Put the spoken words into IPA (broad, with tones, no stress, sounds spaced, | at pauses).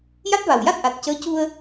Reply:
j a˦˥ t̚ v a˨˩ w j a˦˥ t̚ ʔ a˨˩ t̚ c əː˧˥ c u˧ ə̯